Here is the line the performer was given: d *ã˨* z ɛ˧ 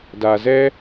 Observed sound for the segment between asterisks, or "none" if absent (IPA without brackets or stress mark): a˨